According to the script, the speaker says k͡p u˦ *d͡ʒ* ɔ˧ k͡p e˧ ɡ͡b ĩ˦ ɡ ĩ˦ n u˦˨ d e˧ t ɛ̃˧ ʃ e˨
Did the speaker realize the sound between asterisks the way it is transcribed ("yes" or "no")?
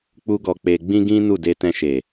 no